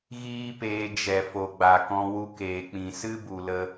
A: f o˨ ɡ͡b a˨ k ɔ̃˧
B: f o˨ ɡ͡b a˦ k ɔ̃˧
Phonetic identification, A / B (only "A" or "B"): A